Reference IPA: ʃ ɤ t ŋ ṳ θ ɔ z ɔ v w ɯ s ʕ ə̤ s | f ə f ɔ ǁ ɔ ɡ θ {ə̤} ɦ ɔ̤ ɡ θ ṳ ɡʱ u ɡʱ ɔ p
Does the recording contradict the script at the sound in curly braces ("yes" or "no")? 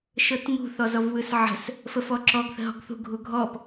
no